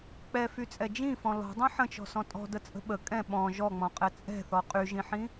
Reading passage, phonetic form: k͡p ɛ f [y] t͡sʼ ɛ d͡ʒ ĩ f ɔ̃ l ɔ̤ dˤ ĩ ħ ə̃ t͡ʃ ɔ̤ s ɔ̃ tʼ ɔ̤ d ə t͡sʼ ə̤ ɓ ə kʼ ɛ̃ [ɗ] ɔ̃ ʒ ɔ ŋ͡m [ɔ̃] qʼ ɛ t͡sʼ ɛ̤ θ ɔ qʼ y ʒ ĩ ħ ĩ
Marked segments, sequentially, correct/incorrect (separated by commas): correct, incorrect, correct